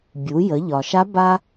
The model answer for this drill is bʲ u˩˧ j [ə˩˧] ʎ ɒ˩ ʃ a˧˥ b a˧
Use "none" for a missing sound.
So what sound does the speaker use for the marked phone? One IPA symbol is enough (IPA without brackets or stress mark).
ə˩˧